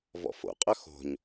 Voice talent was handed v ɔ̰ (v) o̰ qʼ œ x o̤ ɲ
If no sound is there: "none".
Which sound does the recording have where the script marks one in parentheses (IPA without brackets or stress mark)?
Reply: f